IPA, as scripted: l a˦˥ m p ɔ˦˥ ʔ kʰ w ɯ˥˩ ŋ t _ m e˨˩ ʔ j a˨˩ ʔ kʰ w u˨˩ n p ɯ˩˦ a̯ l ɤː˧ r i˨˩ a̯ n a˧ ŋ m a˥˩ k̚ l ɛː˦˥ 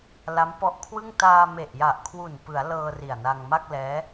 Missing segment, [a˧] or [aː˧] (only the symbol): aː˧